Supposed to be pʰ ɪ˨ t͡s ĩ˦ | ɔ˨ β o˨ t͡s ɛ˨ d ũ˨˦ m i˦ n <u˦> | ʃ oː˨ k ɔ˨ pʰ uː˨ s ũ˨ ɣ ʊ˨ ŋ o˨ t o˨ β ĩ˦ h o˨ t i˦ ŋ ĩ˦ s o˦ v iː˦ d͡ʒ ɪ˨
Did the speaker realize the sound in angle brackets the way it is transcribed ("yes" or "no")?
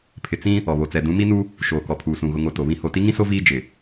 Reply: yes